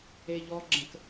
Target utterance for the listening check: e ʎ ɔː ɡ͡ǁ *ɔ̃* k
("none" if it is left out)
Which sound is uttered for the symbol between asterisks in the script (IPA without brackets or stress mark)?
ə̃